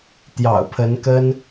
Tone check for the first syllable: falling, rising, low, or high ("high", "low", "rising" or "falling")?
low